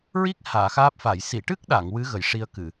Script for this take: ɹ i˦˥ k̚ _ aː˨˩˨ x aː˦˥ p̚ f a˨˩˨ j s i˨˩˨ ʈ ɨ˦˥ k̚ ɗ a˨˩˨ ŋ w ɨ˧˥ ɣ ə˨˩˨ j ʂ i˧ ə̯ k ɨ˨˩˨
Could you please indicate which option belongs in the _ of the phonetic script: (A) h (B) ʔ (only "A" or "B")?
A